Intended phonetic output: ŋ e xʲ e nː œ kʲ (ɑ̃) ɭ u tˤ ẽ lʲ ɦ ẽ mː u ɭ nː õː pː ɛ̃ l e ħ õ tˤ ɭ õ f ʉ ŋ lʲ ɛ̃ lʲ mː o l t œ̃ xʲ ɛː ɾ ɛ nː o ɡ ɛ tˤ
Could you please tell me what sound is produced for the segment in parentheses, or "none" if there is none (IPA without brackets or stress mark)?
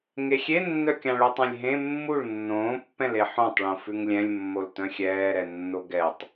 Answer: ɑ̃